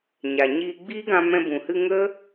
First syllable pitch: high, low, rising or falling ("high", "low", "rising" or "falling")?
low